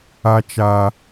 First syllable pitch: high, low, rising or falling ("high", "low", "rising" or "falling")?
high